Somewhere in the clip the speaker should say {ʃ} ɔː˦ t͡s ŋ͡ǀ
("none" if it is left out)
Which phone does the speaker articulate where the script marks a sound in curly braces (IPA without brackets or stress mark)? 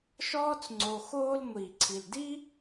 ʃ